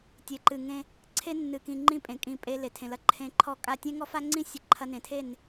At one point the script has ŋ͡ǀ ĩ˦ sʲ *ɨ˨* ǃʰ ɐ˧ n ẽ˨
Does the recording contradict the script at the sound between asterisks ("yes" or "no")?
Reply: no